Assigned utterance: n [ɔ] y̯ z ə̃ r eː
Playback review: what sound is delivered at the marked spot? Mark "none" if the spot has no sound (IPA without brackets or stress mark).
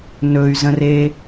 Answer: ɵ